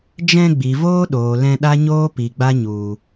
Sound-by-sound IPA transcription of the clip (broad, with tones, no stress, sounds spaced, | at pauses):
d͡ʒ ɛ̃˧ ɡ͡b i˨ v oː˦ ɗ oː˨ l ɛ̃˧ ɗ a˦ ɲ oː˦ p i˨ ɡ͡b a˦ ɲ u˨